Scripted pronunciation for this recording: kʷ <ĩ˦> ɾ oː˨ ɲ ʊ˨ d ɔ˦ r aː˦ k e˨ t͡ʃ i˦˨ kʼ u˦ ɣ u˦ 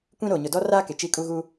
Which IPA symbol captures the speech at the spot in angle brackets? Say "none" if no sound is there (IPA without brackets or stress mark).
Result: ĩ˦